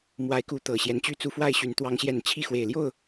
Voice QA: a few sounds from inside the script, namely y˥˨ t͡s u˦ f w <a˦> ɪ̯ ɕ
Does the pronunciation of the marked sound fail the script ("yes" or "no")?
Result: yes